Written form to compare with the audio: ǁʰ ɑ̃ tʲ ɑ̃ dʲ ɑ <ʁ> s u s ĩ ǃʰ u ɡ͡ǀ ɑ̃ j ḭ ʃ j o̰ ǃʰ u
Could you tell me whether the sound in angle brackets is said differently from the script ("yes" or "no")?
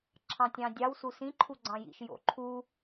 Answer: yes